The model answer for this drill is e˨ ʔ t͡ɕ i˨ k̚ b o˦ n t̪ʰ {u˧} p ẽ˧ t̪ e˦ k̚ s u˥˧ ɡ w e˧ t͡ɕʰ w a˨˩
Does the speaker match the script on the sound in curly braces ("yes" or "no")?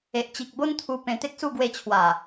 yes